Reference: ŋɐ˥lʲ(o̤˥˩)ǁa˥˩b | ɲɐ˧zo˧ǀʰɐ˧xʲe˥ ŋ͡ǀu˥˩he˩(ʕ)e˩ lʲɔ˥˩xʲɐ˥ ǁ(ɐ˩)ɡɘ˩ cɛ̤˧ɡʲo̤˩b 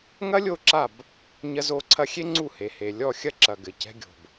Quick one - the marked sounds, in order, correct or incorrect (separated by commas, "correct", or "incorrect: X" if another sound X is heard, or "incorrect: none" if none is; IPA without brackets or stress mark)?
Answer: incorrect: o˥˩, incorrect: h, correct